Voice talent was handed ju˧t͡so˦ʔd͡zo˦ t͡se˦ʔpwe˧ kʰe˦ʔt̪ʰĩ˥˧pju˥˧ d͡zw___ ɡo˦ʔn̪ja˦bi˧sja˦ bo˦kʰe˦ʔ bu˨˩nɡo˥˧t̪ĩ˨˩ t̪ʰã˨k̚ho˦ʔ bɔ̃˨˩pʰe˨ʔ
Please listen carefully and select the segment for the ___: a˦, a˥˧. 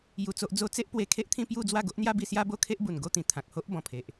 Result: a˥˧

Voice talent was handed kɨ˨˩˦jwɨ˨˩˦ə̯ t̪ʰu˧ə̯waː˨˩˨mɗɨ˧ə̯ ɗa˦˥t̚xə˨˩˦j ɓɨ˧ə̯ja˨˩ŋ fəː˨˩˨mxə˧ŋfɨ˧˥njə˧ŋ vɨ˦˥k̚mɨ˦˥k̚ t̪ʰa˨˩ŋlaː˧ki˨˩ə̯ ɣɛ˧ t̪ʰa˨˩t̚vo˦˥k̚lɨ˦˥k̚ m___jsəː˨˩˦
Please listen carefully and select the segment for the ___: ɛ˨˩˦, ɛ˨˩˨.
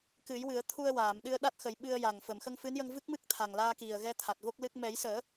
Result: ɛ˨˩˦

